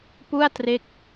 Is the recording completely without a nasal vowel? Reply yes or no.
yes